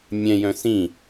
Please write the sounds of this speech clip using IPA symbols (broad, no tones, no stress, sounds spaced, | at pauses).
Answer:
mʲ ɛ̃ j œ̃ s ĩ